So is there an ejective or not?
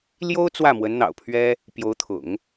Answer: no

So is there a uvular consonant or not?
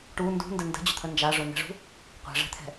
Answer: yes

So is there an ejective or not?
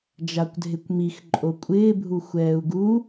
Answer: yes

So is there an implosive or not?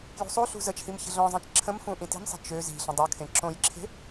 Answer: no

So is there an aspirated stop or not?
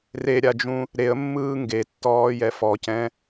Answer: no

